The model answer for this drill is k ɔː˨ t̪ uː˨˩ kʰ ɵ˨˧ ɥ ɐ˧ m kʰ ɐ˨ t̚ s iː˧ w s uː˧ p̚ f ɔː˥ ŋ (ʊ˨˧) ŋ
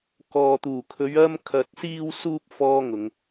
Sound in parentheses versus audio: correct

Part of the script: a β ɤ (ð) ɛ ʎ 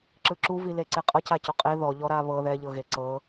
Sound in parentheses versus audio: correct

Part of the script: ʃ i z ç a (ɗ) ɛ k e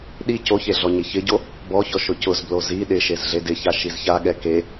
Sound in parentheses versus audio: incorrect: ɠ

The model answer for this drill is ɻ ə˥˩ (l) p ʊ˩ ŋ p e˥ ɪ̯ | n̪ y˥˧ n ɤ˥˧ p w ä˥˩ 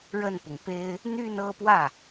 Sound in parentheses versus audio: incorrect: n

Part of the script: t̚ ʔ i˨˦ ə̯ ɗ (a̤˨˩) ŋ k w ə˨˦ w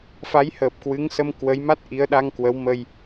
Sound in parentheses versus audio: incorrect: a˧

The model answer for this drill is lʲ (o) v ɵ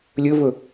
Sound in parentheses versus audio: incorrect: ɵ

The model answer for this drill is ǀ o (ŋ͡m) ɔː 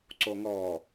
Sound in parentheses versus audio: incorrect: ŋ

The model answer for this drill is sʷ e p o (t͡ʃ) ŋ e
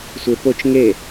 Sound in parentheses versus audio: correct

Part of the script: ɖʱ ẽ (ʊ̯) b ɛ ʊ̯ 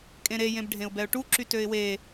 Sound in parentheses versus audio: correct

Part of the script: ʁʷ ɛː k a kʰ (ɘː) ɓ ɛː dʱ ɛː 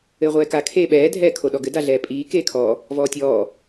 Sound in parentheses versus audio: incorrect: eː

